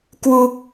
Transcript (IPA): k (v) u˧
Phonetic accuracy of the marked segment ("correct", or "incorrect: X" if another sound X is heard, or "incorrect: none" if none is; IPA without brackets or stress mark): incorrect: w